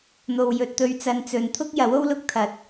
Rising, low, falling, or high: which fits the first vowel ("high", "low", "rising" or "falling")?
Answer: low